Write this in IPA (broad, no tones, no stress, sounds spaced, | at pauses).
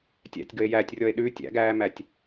tʲ æ̰ tʲ ɡ ə e̯ j æ tʲ rʲ ɔ e̯ ɗ ʉ tʲ æ̰ ɡ æː m æ tʲ